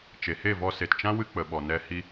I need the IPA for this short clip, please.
t͡ʃe˨he˦˨vɔ˧ se˨tt͡ʃã˦wɨ˧ k͡pə˨ɓɔ˨ nɛ˧ hi˧

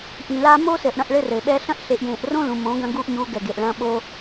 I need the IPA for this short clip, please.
ʔĩ˨laː˦ mo˦sɘ˨ʔ ɽɐ̃˦ʔɭɘ˦rɘ˨ɓɛ˦ ɬɐ̃˦ʔɬe˨ʔjẽː˨ʔrõ˦ lũ˨mõ˨˦ɡɐ̃˦ ɡu˦ʔɲu˨˦ ɡɛ˨ɡe˨ʔɭɐ̃ː˦ ɓo˦

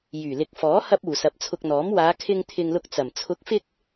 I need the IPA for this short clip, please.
jyː˨˩lɪ˨k̚fɔː˨˥ hɐ˧p̚uː˨˩ sɐ˨˥p̚t͡sʰʊ˧k̚ n̪ɔː˨˥m waː˨˧kʰɪ˧ŋ t̪ʰɪ˧ŋlʊ˧k̚t͡sɐ˨˩m t͡sʰʊ˨˥k̚fɪ˧k̚

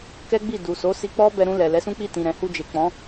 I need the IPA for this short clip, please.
kɛ˦ɡ͡bi˦˨du˨ so˨˦si˧k͡pɔ˦bɛ˧ ɾũ˧ lɛ˨lɛ˨˦sũ˦k͡pi˦˨ tĩ˨ɾɛ̃˨hu˧ d͡ʒe˨k͡pɔ̃˨˦

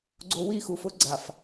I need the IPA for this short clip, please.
ɡ͡ǀo˨wi˦˨xu˨fʊ˦ ɡ͡ǀa˨f

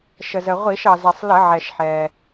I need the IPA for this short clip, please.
ʃə˩zə˩ ʁʷi˧˩˧ʃɑ˩zɛ˩sˤ lə˧˩˧ʕɛ˩ʃ ħɛː˩

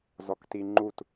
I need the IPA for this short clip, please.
zɔktiŋ͡ǃut

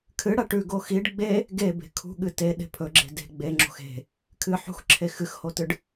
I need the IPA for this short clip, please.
kʰɨɽa ʈʉɡo xiɖ ɡ͡be | ɡebe̤ kʰṳɠɨ teɗe̤ pʰɵɡ͡ǁe̤ de̤ ɡ͡beŋ͡ǁo̤x e̤ | kʰɨ ħṳxǁʰe xɨxhotɨɖ

